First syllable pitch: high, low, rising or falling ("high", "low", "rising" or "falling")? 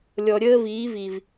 low